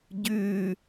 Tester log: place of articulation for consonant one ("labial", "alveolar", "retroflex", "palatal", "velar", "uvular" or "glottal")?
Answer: palatal